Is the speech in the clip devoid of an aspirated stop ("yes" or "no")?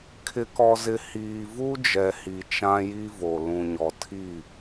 no